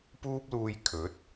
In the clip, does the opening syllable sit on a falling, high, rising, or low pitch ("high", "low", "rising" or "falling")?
high